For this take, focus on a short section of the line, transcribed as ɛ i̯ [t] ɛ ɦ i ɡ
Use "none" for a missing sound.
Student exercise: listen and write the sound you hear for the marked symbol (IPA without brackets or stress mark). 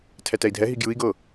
dʱ